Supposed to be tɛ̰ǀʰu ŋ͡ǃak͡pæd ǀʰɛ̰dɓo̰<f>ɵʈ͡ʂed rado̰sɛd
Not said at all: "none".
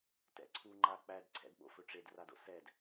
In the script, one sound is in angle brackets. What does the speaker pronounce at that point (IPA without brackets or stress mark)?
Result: f